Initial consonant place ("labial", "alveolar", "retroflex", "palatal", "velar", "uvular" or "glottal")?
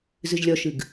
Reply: alveolar